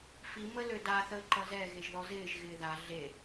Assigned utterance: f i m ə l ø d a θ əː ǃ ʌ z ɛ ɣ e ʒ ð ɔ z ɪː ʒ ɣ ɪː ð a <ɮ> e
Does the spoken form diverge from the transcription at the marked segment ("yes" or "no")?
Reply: no